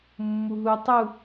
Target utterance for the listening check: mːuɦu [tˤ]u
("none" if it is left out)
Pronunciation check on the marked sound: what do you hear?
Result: tˤ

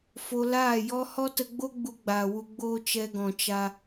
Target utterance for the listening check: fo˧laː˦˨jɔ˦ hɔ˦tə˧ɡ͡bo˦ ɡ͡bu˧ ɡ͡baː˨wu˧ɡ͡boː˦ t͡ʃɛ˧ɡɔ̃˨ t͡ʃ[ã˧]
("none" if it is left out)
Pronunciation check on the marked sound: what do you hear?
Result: a˧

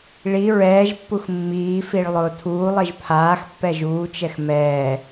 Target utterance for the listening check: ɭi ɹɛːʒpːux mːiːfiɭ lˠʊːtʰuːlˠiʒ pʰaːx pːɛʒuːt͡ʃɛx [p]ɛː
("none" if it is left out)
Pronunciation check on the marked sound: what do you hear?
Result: m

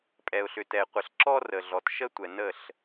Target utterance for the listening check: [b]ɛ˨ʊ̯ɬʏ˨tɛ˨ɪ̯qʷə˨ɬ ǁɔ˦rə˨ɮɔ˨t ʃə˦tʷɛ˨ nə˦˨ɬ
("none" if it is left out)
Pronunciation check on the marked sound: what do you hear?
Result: pʼ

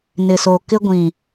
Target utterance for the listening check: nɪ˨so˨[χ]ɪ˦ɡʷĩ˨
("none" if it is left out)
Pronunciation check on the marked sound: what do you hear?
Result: k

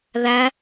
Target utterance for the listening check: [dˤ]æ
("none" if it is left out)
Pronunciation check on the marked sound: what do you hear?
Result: ð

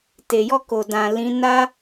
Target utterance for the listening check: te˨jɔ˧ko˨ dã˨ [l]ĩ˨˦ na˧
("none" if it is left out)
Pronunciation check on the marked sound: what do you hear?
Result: l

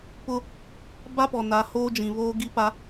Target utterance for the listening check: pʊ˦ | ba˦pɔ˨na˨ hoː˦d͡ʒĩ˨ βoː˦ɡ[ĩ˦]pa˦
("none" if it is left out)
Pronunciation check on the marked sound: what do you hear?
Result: i˦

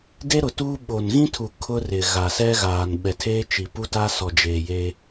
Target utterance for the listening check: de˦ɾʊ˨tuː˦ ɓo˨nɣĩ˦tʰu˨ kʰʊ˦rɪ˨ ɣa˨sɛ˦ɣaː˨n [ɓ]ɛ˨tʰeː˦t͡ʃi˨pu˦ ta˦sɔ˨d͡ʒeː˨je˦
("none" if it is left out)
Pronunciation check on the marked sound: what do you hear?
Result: ɓ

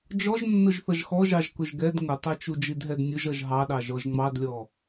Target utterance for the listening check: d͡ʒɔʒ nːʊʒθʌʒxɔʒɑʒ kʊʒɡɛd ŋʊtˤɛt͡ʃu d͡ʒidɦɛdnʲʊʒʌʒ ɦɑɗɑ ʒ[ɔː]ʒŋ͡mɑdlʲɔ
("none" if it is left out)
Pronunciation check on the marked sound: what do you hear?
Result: ɔ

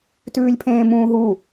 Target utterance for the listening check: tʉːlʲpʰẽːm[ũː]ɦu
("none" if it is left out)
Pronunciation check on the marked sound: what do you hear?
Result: ũː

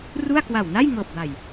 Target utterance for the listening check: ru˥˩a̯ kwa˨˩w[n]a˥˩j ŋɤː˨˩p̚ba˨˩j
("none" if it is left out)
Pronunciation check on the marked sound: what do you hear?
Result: n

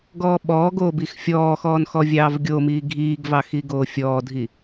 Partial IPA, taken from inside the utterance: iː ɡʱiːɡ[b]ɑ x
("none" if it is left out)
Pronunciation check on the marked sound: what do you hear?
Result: v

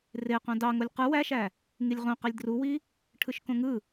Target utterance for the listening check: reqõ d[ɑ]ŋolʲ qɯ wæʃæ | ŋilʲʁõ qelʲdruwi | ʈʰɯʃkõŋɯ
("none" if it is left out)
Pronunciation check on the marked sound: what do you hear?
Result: ɑ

